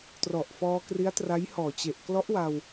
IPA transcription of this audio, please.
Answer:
t r ɔ˨˩ ʔ f ɔː˧ k r i˦˥ a̯ t r a˦˥ j h ɔː˨˩ t͡ɕ e˨˩ ʔ k l ɔ˦˥ ʔ w a˧ w

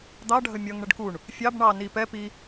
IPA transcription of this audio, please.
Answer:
d̪ ɑ ɖʱ ə mʲ ʌ ŋ ɳ ə ɖ k u ɳ | fʲ ɑ b ɳ ɑ n i p ɛ p i

